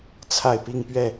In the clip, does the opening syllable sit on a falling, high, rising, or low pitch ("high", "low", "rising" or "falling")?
falling